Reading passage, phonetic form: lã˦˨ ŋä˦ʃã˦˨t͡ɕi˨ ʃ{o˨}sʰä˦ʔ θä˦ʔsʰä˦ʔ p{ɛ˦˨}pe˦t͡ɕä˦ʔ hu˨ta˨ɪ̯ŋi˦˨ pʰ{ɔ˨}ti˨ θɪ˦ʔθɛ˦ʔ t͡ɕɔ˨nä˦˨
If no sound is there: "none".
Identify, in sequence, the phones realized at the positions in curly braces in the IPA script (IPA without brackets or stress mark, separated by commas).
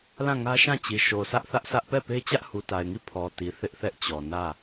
o˨, ɛ˦˨, ɔ˨